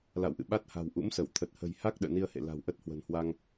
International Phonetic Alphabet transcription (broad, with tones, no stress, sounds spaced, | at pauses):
l a̰˧˨ w ʔ ɨ̰˧˨ ɓ a˦˥ t̚ h a̤˨˩ w ʔ ṵ˧˥ m s ə˧˩ w t̪ʰ ə˨˩ t̚ h ə̤˨˩ j h a˦˥ k̚ ɗ ə̰ː˧˨ n i˧ ə̯ h ḛ˧˨ l a̤˨˩ w ʔ ə˦˥ t̚ h w ə̤˨˩ n h w a˧ ŋ